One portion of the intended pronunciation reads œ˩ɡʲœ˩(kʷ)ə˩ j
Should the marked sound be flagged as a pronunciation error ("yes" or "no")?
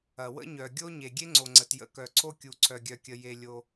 yes